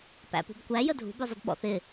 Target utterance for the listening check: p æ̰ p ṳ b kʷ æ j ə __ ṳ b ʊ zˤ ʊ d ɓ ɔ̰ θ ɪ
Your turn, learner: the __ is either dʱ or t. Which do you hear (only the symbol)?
dʱ